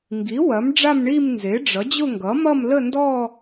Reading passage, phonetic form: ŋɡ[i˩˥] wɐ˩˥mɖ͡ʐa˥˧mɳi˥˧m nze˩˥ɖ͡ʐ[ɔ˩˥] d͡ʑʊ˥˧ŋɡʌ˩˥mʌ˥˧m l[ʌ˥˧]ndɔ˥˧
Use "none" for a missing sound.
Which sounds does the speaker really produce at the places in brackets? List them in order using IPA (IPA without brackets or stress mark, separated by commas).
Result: i˩˥, ʌ˩˥, ə˥˧